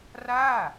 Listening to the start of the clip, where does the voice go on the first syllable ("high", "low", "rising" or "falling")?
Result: falling